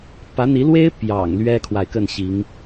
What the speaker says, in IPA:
pä˧˥n̪i˧˥lwe˥ɪ̯ pjɑ̰˨˩ŋ lɥɛ˥kʰwa˨ɪ̯ kə˥˩nɕi˧˥ŋ

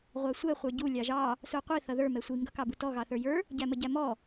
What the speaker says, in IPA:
ʁʷɑsʷɛ χʷə˞ɟu lʲɑʒɑ | sə˞qʷi θʌðə˞ mɛsʷi ŋɡʌkɑbutɔ ɣɑθə˞jə˞ | ɟæməɟæmɔ

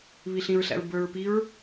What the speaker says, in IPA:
βiɬĩɹɬæ̰ɹ bə˞ɹpiɹ

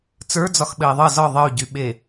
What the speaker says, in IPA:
t͡sə˞d͡zɒxɓɘi̯ ðˤɘ zɒ ðˤəy̯ɟyɓe

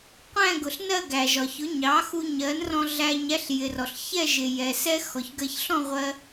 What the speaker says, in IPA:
qʷæ̃˥˧ɡʊ˩ɬnɜ˥˧ ɡæ˩ʒɒ˩çʊ˩˥ɲɑ˩˥ xu˧ɲɜ˩˥nrɔ̃˧ ɮæ˧ɲ æ˥ɬjɪ˩rɔ˩ɬ çɛ˥˧ʒɪ˩ jɛ˩sɛ˥ xɔ˩çɡɜ˧ç ɬɔ̃˥˧ ʁʷɜ˧

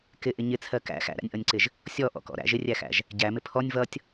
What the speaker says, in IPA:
kɪʔɪ ɲɪt͡sʰɜ kæ̰ xæ̰ɾæ̰nʲʔʌnʲǀɪʒ | sʲɔʔɔ̰kɔ̰ ɾæ̰ʒ ɪrʲæxæ̰ʒ | ɟæmɪ pʰɔnʲ vʌtʲ

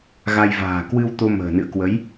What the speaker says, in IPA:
ɣa˧j va̤ː˨˩kwɨ˧w t̪o˧ mə̤ː˨˩nɨ̰˧˨ə̯kwə˨˦j

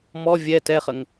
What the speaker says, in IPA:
mɔ vʲɛ tɛχəŋ

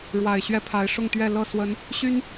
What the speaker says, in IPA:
ɻwa˨˩ɪ̯ɕɥɛ˦pʰa˨˦ɪ̯ ʂʊ˥˨ŋt̪ɥɛ˥˨ lɤ˥˨swə˨˦n | ɕy˦n

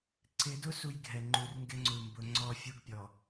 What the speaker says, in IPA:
ǀɪ˨˦dʊ˦ su˦jɡʱɛ˨ ŋ͡ǃu˨rŋɡɪ˦ŋ͡ǀu˨mbʊ˨˦ ŋ͡ǀɔ˦˨fʲu˦ɡpʲɔ˨

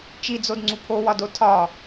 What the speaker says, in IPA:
t͡ʃid͡zodŋ͡ǀu pʰowɒdo tʰɒ

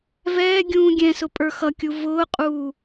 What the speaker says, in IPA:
vɛːɡʲũː ɡʲɛ̃sʊ pʼə˞xʌkʲu vʊːqʼuː

